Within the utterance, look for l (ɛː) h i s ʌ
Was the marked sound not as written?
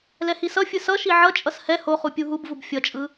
yes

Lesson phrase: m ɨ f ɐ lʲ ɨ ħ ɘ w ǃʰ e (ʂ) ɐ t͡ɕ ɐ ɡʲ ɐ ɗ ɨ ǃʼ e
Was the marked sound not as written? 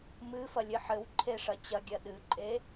no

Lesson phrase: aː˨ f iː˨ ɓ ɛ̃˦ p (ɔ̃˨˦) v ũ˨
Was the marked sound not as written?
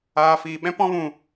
yes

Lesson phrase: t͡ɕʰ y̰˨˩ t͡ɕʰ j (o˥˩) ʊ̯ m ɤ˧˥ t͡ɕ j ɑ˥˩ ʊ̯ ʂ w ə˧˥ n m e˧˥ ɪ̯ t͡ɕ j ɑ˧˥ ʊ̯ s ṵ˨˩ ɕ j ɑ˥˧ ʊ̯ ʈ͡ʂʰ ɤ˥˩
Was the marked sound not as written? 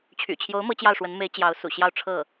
yes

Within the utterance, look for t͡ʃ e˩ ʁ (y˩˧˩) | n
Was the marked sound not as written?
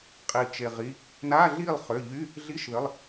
yes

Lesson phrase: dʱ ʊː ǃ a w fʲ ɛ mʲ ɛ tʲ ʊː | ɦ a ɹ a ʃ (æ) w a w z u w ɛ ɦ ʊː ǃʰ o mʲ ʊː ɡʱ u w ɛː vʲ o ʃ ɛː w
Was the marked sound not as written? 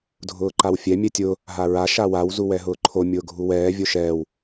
yes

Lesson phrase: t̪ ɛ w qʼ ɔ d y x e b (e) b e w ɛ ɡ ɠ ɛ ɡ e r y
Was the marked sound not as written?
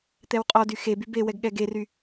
yes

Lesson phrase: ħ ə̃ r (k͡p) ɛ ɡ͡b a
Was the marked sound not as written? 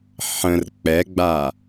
no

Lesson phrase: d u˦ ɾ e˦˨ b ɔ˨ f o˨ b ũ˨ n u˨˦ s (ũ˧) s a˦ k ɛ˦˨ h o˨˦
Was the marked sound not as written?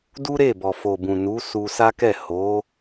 yes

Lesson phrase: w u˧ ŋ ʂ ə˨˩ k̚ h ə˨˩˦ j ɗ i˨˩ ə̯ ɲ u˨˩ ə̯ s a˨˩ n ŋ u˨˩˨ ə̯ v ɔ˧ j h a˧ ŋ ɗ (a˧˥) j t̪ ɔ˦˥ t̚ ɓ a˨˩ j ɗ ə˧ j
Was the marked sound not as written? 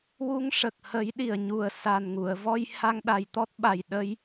yes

